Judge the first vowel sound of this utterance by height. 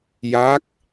low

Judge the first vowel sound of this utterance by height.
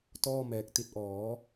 mid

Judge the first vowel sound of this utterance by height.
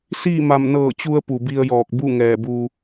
high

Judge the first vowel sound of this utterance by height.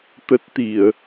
mid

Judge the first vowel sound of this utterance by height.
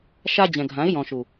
low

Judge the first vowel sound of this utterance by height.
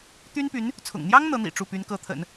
high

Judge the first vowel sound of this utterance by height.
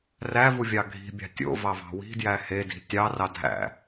low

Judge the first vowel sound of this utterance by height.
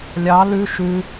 low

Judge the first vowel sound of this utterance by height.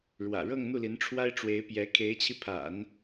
low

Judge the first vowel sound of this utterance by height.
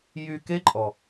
high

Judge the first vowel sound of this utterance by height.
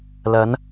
low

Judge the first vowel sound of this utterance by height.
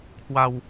low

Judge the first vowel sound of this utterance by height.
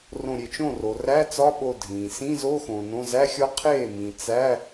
mid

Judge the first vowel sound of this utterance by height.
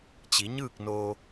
high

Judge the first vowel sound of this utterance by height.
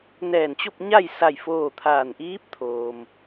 mid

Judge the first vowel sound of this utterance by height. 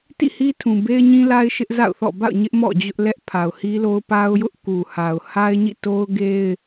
high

